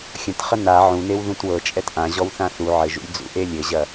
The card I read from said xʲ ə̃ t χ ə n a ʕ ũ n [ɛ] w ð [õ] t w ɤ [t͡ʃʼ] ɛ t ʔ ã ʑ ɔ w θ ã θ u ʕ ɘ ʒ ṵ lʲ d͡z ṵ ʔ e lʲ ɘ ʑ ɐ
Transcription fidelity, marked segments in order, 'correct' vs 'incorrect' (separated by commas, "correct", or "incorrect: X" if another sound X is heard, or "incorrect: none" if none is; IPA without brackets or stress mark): incorrect: e, incorrect: ũ, correct